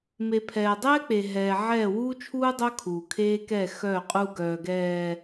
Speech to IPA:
m e˨ pʰ ɛː˨ dˤ ɛː˦ k͡p e˨ ɦ ɛː˨ ʕ ɛː˦˨ w uː˦ t͡ʃʰ uː˦ dˤ œ˦ kʰ uː˨ kʰ eː˦ k ɛ˦˨ x œː˦˨ qʼ u˦ ɡ œː˨ ɡ ɛː˨

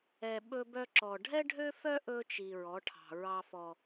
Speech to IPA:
ɛ˨ ɓ ɵ˦ b œ˦ ǁ ɔ˨ ɖʱ ɛ˦ ɖʱ ø˦ f œ˦ ʔ ɵ˦ t͡ʃ i˨ ɹ ɔ˨˦ ʈʰ ɑ̤˨ ɹ ɑ˦ f ɔ˦

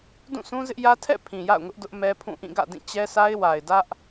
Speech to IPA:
d ũ˦˨ s ũ˦ z ɪ˦ ʔ j ä˦ tʰ ɛ̰˦˨ pʰ ĩ˨ j a̰˦˨ ʊ̯ ŋ ʊ˦ ʔ d ʊ˦ ʔ m ɛ˦ pʰ ũ˦˨ ʔ ĩ˦˨ ɡ ä̰˦˨ d ĩ˦˨ t͡ɕ ɛ˦ s a˦ ɪ̯ w a˨ ɪ̯ d ä˦ ʔ

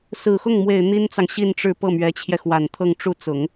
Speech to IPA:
s ɹ̩˨˩ x ʊ˥˩ ŋ m w e˨˩ ɪ̯ n̪ i˥ n t͡s ɑ˨ ŋ ɕ i˥˧ n ʈ͡ʂ ɻ̩˥˧ p ɤ˥˩ m ɥ ɛ˧˥ t͡ɕʰ j ɛ˧ x w a˨˩ n t̪ʰ ɤ˥˧ ŋ ʈ͡ʂ u˥˩ t͡s ʊ˨˩˦ ŋ

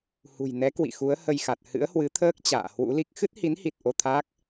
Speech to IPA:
h ṳ˨˩ j n ɛ˨˦ k w ḭ˧˨ x u˨˦ ə̯ h ə˧ j x a˨˩ t̚ h ɨ̰˧˥ ə̯ h w ɨ˨˦ t̪ʰ əː˦˥ k̚ t͡ɕ a̰ː˧˨ h w ṵ˧˥ l i˦˥ k̚ x ɨ˦˥ t̚ h i˨˦ n h i˨˩ t̚ ʔ o˧ t̪ʰ aː˦˥ k̚

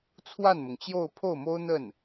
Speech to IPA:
t͡sʰ w a˥˩ n m ʊ˩ ŋ t͡ɕ j o˥˧ ʊ̯ pʰ o˥˩ ʊ̯ m o˥ ʊ̯ n̪ ə˥˩ n

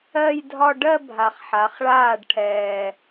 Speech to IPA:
ɜ˥˧ j dʱ ɒ˥˧ ɖ ɜ˥˧ bʱ a˨˩ χ ħ a˩˧ χ ɭ aː˥˩ ɖ ʈʰ ɛː˨˩

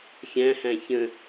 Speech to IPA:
xʲ æ̃ h æ̃ ç ə̃

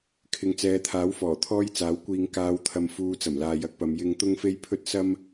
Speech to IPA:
kʰ ɪ˨ ŋ t͡s ɛː˨˧ t̪ʰ aː˨˥ w f ɔː˨˩ t̪ʰ ɔː˥ j t͡s aː˨˥ w kʷ iː˨ ŋ k aː˨˧ w t̪ʰ ɐ˨ m f uː˨ t͡s ɐ˨˩ m l aː˨ j ɐ˧ k̚ p ɐ˨˧ m j ɪ˧ ŋ t̪ ʊ˥ ŋ f e˥ j pʰ ɵ˥ t̚ s ɐ˥ m

